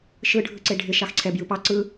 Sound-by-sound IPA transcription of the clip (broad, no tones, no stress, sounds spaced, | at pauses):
ʃ ɯ ɖʱ ɯ ǀ e ɖʱ ɪ ʃ ɑ x ǀʰ ɛ b j ɯ p ɑ ǀ ɯ